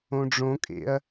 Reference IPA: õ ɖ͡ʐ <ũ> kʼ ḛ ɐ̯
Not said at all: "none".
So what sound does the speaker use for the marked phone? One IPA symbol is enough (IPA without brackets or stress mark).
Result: õ